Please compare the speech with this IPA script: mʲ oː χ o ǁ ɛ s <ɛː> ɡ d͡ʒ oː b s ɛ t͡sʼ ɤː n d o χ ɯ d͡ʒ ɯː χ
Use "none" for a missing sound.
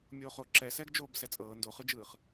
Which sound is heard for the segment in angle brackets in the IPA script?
ɛː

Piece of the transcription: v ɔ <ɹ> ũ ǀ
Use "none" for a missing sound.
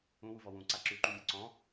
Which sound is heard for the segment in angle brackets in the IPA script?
w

